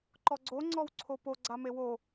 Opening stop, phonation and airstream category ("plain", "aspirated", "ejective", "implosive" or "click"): click